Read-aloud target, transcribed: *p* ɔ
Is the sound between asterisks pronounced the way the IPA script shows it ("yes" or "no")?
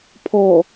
no